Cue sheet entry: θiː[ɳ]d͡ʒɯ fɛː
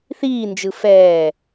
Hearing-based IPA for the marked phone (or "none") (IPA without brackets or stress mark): n